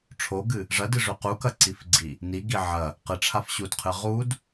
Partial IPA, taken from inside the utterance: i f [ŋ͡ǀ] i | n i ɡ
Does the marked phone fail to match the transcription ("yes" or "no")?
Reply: yes